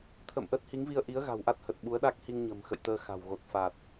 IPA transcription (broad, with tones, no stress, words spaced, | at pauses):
t̪ʰə̰ː˧˨mʔəː˦˥t̚hi˨˦ŋvi˧ə̯ ʔi˨˦ə̯ɣa̤˨˩wʔa˦˥t̚ hə˨˩t̚ɓu˨˦ə̯ɗa˦˥k̚ hi˧ŋɲə̤˨˩m xə̰˧˨jt̪əː˧ xa̤˨˩wɣo˨˩t̚ fa˨˩t̚